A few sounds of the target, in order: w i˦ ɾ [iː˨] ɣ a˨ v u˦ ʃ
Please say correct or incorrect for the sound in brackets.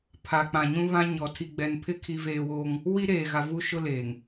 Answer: incorrect